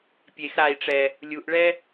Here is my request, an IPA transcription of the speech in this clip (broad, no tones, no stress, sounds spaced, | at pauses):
pʲ e x ɾ a i̯ ʈ͡ʂ ɛ | lʲ u ʔ ɭ ɛ